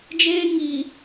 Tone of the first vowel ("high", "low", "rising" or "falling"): high